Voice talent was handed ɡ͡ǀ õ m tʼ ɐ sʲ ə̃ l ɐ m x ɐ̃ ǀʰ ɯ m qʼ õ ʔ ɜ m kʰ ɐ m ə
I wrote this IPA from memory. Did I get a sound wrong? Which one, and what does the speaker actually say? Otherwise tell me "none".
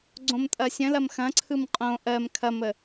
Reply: none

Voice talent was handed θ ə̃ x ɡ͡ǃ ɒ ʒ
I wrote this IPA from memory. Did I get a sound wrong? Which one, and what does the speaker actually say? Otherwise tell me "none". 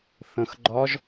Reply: none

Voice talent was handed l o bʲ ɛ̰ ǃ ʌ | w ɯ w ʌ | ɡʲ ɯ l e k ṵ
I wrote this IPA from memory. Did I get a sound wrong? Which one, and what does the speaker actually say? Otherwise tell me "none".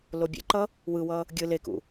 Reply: none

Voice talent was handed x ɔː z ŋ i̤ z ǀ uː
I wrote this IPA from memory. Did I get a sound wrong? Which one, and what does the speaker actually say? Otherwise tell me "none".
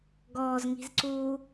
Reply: x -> ɡ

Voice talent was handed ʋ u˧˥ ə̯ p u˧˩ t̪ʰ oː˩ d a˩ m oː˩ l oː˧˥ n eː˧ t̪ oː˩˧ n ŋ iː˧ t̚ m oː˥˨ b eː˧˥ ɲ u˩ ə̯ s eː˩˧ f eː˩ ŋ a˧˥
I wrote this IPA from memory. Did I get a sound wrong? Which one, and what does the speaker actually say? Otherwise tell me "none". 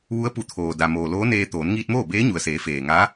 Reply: none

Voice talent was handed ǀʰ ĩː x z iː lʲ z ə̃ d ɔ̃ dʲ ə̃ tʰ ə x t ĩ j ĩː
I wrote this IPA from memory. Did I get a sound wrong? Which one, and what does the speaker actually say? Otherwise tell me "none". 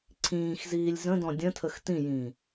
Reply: none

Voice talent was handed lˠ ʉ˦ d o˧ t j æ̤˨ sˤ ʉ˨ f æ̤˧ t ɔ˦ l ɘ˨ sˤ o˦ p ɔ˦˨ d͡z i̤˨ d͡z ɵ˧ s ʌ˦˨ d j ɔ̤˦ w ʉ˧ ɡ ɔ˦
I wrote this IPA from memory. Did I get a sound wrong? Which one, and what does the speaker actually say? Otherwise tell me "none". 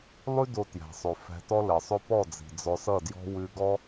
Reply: ɵ˧ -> ɔ˧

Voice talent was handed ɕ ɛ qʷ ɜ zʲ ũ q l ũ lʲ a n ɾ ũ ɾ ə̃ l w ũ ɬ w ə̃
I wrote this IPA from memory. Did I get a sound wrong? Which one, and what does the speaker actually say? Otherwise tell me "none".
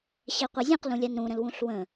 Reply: none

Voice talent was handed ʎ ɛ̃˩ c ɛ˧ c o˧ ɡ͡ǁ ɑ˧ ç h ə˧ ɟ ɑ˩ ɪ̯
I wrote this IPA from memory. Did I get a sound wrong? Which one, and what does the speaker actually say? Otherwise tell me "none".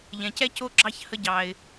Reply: none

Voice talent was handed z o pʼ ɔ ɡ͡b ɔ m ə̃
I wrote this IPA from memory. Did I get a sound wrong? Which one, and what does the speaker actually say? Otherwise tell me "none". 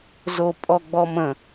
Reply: none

